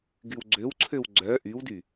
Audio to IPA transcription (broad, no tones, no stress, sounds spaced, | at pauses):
ɡ y w ɡ͡ǀ ø w ǀʰ ø w ɡ͡ǀ œ ʔ y w d y